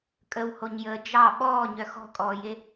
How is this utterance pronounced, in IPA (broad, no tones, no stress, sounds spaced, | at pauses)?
kʼ ə w h o ɲ j əː d͡ʒ ɑ ɓ ɔː ɲ œ x ɔ̤ kʼ ɔː j e